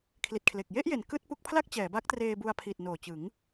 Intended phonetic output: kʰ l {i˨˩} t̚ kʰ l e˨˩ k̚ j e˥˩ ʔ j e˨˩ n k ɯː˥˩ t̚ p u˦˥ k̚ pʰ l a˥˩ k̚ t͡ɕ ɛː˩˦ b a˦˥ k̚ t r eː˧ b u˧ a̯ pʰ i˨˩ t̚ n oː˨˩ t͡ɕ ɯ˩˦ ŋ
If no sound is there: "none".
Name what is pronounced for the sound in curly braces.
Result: i˨˩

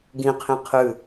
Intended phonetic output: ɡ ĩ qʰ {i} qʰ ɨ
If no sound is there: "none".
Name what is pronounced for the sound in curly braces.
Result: ĩ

